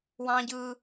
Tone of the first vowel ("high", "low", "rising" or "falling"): high